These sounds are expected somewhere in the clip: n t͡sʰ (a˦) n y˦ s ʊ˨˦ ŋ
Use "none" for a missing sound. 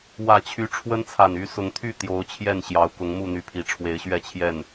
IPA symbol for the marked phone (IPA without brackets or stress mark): a˨˩